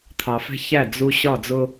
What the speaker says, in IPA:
t̪ʰ ɑ˨ f ɛ̤˦ ç æ˦˨ d͡z u˦ ɕ ɒ˦˨ d͡z ʊ˦

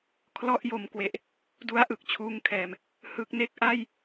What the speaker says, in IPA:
kʰ l ɔ˥˩ ʔ j o˧ m k w e˨˩ ʔ | d u˦˥ a̯ ʔ ɯ˨˩ k̚ t͡ɕʰ uː˦˥ ŋ kʰ ɛː˨˩ m | h ɯ˦˥ k̚ n e˥˩ k̚ ʔ a˥˩ j

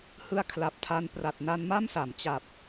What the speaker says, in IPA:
h ɯ˧ a̯ kʰ l a˨˩ p̚ tʰ a˧ n p r a˨˩ t̚ n a˧ n m a˥˩ m s a˩˦ m t͡ɕ a˨˩ p̚

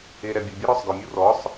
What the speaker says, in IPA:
e ɾ ɛ bʲ ʉ bʲ ɛ ɾ ɔ sˤ ɡ œ mʲ u r ɔ sˤ

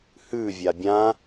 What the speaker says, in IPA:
h ʉ vʲ a bʲ ã

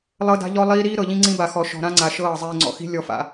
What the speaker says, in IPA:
lˠ ɤ˦ d a̤˦ ʎ ɔ˦ lˠ iː˦ ɾ iː˦ ɾ ɤ˨ ʎ ĩ˦ ŋ͡ǀ ĩ˦ b a˨ x ɔ˨ ʃ ɔ̤˨ ɾ ã˦ ŋ͡ǀ a˨ ʃ ɤː˦˨ zˤ iː˨ ŋ͡ǀ ɔ̰˨ x i̤˦ lʲ ɔ˨ f a̰˨

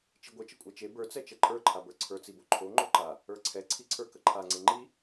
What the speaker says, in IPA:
t͡ʃ i ɡʷ ə t͡ʃ ə kʷʼ ɛ t͡ʃ e b ə˞ t͡s ɛ t͡ʃ ɛ ǃʼ ə˞ ǃʰ a b ə˞ ǀʰ ə˞ t͡s i b o ǃʰ o ŋ͡ǃ o ǃ a | ə˞ ǀʰ ɛ ǀʰ i ǀʰ ə˞ k ə ǃʰ a ŋ͡ǀ e ŋ͡ǃ i

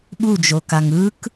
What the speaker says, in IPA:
ɓ u d͡ʒ o k a ŋ ɯ k

